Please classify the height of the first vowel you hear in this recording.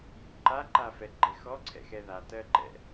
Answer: high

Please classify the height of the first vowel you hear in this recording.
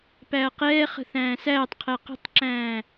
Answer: low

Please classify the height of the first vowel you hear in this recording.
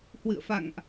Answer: high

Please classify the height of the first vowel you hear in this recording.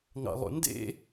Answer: low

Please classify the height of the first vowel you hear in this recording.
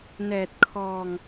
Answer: mid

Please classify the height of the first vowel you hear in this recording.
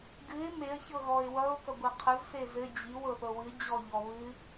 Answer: high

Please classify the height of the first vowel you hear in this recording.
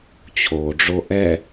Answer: mid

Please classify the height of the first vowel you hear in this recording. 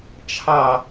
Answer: low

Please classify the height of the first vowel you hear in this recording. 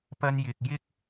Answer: low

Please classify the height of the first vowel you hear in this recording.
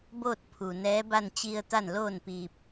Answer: mid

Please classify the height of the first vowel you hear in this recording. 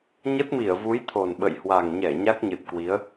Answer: mid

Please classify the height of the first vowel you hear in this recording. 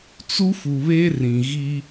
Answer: high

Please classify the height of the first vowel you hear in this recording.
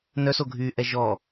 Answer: mid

